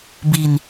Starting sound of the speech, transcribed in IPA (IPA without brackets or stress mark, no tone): b